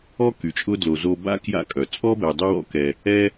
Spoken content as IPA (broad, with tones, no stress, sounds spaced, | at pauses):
ɔ˥ k y˩ t͡ʃʼ ʊ˦ d l o˨ z o˦ b a̰˥ k j a̰˦ kʼ œ˩ t͡sʼ ɔ˥ b ɛ˨ dˤ ʊ˥ w ɔ̰˥ k ɛ˨ | ɛ˥